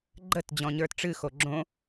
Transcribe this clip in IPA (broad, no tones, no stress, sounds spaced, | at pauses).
ɡ͡ǃ ə t d͡ʑ ɔ̃ ɲ ə˞ t ʈ͡ʂ ɨ x o ɡ͡ǁ õ